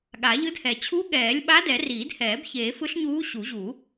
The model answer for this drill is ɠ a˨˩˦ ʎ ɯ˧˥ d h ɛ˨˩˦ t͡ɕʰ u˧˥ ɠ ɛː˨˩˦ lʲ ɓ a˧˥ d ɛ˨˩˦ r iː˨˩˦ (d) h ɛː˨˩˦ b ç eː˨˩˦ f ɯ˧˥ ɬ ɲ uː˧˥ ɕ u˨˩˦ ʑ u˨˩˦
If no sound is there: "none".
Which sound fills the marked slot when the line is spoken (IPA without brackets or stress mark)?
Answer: d